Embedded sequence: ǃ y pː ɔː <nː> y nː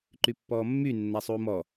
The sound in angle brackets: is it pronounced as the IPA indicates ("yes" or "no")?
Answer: no